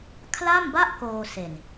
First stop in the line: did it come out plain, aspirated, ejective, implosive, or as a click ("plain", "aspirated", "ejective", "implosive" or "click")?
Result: aspirated